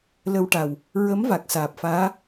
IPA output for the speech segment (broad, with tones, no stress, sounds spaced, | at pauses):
l ə˧ w ʈ a˨˩ w | ɹ ə˧˥ m v a˨˩ k̚ s aː˨˩ p̚ f aː˧˥